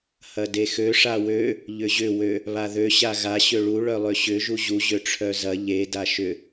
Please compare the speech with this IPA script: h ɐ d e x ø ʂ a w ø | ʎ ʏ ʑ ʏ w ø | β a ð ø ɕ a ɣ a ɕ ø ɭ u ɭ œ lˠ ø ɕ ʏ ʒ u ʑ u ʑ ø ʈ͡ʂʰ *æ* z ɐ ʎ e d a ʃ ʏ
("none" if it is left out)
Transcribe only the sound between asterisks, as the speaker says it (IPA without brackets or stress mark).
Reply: œ